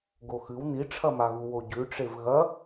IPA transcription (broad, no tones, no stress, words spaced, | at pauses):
ɡoxɨw niʈ͡ʂʰɐmaɣu woɟʉʈ͡ʂev ɣɐ